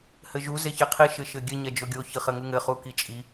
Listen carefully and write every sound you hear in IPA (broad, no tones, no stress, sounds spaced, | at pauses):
h ɘ ʒ u z e ç e qʰ i ʃ ɘ ʃ ɘ ɡʲ ɘ ɲ ɛ d͡ʒ o ɡʲ o ç ɨ χ ɘ ŋ u ŋ ɘ χ u k i t͡ʃʼ i